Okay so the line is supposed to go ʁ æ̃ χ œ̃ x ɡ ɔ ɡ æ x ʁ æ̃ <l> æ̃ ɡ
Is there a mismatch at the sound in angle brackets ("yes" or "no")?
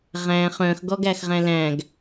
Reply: no